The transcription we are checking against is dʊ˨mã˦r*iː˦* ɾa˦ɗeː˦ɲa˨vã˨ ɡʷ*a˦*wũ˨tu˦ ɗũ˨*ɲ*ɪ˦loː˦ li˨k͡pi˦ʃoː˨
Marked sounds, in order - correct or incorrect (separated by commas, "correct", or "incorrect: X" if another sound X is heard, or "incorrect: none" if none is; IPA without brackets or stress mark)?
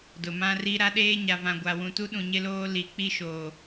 incorrect: i˦, incorrect: a˨, correct